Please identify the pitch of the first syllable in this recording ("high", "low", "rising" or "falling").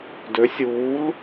rising